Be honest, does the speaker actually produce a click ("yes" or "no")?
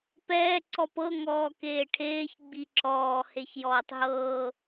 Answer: yes